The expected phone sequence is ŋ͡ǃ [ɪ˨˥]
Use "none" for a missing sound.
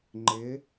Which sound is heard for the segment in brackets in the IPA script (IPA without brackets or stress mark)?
ɪ˨˥